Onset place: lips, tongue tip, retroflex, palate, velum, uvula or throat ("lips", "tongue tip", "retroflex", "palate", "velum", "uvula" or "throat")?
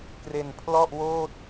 velum